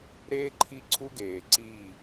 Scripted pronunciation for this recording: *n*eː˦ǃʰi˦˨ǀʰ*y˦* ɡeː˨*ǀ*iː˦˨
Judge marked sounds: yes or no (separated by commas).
no, no, yes